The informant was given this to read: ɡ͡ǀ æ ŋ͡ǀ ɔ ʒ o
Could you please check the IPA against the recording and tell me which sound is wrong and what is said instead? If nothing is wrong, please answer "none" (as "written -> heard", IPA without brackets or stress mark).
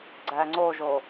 ɔ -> o